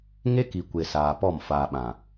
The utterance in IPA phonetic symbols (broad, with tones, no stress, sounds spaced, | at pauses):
ŋ e˦ k i˨ kʷ e˨ s aː˨ p ɔ˦˨ m f aː˨ ɓ ã˨